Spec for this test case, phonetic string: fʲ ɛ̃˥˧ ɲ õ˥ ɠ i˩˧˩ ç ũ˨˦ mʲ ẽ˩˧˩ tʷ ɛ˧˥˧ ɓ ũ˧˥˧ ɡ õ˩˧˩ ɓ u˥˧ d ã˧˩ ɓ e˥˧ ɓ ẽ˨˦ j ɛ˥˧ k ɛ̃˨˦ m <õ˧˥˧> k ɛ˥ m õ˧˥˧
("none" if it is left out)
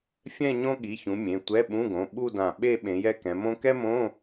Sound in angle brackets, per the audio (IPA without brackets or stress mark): õ˥